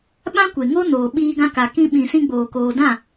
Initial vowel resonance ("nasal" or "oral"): nasal